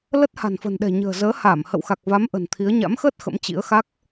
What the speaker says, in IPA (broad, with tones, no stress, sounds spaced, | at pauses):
l ə˦˥ t̚ h a̤˨˩ n f ə̤˨˩ n ɗ ɛ̤˨˩ ɲ ə̤ː˨˩ z əː˨˦ h a˧˩ m h ə̰˧˨ w x a˨˩ k̚ v a˨˦ m ʔ ə̤˨˩ n t̪ʰ i˨˦ ə̯ ɲ a̰˧˥ m x əː˦˥ t̚ x ə̰˧˥ m t͡ɕ ḭ˧˥ ə̯ x a˦˥ k̚